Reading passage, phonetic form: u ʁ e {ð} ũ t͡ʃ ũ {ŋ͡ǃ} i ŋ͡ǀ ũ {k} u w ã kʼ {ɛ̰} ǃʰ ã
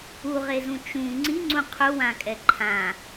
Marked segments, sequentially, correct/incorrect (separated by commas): incorrect, incorrect, incorrect, incorrect